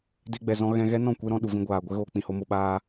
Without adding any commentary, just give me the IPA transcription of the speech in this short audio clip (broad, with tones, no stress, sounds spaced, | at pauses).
d e˧ ɡ͡b ɛ˨ z ɔ̃˧ ɣ ɛ̃˧ ɣ ɛ˦ n ɔ̃˦˨ kʷ e˦ ɾ ɔ̃˧ ɗ u˨ v ĩ˧ ɡʷ aː˨ ɡʷ ɛ˦ ɣ oː˧ k͡p ĩ˨ h o˧ m o˧ ɓ aː˦